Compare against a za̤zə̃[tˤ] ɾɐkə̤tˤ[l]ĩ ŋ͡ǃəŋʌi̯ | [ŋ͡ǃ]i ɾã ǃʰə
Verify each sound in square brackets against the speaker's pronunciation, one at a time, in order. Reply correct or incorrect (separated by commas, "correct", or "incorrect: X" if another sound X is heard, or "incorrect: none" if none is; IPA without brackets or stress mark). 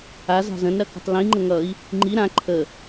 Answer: incorrect: n, correct, correct